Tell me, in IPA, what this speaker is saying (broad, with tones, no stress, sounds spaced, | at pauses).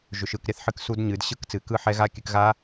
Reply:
ʒ ʏ˨˩˦ ʃ ɯ˨˩˦ k ɾʲ a˦˥ θ ħ ɨ˦˥ k s u˦˥ d ɲ ɨ˨˩˦ d ɕ ɯ˦˥ k t͡s ɨ˨˩˦ k ɯ˦˥ ħ ɛ˦˥ ɣ a˦˥ kʲ ɨ˨˩˦ k ɣ a˦˥